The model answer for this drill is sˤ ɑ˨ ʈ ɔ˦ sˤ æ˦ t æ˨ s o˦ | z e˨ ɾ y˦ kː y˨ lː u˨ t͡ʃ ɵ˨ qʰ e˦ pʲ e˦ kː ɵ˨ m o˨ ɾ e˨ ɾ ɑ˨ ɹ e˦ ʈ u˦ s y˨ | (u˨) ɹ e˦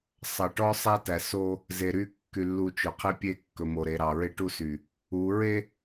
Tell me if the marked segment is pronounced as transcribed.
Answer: no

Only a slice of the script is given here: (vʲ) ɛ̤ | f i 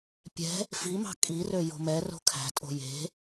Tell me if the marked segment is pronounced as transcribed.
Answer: no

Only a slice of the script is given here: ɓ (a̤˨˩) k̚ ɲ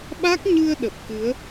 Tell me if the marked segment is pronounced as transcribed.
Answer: no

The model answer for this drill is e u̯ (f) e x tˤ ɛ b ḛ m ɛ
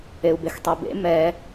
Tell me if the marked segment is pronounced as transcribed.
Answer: no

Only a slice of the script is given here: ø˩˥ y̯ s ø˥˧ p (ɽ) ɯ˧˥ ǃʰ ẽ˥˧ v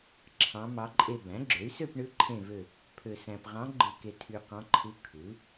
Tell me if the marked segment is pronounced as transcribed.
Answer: no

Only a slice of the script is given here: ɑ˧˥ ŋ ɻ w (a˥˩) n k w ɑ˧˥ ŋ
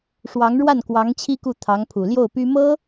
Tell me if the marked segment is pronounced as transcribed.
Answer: yes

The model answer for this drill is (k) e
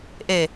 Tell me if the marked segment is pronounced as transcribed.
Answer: no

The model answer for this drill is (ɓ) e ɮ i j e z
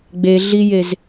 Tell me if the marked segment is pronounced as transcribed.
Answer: no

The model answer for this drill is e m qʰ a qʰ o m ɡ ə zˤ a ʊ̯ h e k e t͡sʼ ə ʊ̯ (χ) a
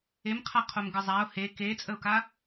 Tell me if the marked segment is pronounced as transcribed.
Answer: no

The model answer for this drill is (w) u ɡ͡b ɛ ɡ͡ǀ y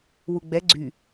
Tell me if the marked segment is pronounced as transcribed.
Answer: yes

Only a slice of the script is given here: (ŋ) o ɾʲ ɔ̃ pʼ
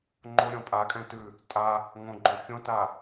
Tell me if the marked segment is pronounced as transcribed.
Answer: no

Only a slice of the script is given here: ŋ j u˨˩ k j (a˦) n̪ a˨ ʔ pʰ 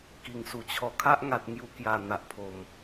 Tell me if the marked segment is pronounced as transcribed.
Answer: no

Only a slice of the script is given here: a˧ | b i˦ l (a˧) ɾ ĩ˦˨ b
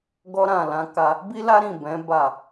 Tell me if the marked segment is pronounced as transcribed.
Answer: no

